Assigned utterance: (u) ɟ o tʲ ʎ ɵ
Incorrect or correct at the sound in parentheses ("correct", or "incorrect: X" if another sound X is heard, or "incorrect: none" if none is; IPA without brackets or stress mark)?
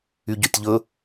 incorrect: y